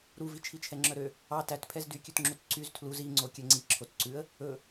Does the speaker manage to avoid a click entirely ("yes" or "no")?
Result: no